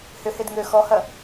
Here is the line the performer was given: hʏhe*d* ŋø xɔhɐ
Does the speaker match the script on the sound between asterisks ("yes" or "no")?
yes